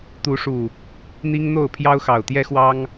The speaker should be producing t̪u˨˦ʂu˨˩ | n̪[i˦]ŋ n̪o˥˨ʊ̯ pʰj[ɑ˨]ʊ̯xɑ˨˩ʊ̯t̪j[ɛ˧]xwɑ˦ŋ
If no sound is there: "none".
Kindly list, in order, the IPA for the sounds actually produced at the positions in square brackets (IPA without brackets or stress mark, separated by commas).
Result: i˦, ɑ˦, ɛ˦